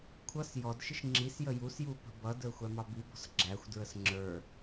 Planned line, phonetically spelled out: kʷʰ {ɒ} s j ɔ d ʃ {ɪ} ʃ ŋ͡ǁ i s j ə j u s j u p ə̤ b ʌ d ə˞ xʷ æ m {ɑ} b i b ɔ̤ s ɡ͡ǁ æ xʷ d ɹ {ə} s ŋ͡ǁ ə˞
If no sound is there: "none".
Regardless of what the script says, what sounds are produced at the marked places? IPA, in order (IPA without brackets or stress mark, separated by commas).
ʌ, ɪ, ɑ, ə